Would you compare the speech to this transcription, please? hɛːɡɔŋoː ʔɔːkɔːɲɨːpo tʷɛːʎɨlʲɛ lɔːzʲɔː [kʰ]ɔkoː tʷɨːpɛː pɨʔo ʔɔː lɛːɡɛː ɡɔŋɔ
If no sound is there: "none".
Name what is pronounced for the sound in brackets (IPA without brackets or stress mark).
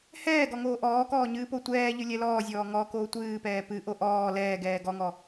ŋ